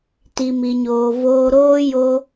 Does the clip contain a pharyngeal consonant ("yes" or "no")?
no